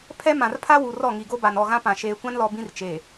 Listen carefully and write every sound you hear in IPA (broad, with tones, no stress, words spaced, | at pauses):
pʰɛ˦ mã˨rpʰa˦wu˨ rɔ˦˨ŋi˨ɡo˦ba˨n ɔ˦˨ɣã˦pã˨ ʃeː˨kʷã˦nlɔ˨ bĩ˦rt͡ʃeː˨